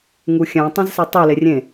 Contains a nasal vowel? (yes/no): yes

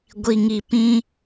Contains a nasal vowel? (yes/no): yes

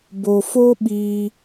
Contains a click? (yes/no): no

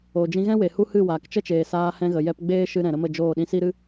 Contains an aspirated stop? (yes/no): no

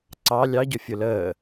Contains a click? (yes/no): yes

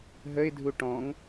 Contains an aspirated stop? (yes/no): no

